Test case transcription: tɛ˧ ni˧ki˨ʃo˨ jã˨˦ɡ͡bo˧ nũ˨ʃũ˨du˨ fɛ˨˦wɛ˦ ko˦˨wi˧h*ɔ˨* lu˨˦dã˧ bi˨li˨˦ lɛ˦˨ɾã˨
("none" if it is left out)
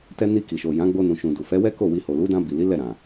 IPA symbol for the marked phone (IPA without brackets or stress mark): o˨